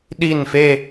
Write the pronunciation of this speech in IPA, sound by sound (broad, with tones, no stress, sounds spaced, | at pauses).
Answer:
ɗ i˦˨ n f e˦˨